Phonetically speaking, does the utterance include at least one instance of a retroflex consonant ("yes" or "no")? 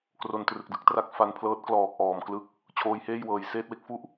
no